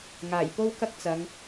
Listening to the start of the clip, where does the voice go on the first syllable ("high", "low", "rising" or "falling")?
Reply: low